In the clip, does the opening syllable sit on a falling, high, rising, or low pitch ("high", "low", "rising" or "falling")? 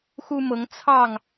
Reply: high